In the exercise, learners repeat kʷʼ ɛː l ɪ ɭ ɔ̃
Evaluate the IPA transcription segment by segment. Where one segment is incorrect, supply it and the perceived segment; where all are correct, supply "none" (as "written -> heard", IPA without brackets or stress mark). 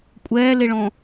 none